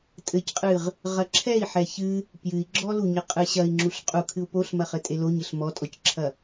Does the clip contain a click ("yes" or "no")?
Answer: yes